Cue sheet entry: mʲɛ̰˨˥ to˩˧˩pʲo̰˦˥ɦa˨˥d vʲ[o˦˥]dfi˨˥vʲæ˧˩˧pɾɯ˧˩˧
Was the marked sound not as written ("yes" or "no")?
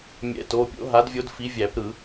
no